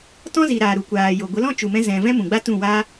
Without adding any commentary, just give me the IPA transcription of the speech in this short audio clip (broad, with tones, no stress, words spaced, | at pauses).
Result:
tɔ̃˦zi˨ ɾaː˨ɾu˨kʷaː˨jo˨ ɡʷə˨˦lɔ̃˦t͡ʃu˨mɛ̃˧ zɛ̃˨ vɛ̃˦mũ˨ɡ͡ba˦ tũ˦˨ wa˦